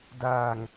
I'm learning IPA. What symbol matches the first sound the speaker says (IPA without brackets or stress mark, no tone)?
d